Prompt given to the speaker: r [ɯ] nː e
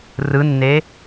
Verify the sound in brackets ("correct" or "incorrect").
correct